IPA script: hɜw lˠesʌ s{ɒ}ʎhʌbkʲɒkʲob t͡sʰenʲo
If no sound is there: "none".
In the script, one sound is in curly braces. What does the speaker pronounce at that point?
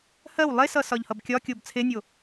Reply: ɒ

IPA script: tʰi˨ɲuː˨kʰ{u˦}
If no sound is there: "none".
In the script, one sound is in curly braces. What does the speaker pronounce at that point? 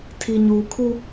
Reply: u˦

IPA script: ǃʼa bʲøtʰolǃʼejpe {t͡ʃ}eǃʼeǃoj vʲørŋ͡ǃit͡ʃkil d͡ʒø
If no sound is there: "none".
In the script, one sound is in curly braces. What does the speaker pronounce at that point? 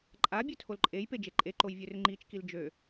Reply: d͡ʒ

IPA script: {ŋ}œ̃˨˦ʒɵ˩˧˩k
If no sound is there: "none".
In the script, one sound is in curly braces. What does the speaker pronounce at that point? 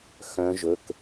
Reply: x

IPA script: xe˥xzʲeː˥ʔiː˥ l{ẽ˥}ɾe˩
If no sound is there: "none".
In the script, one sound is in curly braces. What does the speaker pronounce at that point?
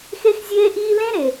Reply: ẽ˥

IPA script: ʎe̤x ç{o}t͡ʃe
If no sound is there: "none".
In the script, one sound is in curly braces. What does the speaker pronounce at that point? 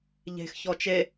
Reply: ɔ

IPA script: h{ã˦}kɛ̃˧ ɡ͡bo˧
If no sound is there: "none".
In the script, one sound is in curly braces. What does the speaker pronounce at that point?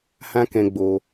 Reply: ã˦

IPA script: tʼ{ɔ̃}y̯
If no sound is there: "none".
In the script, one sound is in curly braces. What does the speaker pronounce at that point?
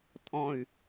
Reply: ɔ̃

